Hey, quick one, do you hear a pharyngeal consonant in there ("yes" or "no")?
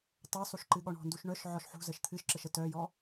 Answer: yes